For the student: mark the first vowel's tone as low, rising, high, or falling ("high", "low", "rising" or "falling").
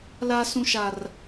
high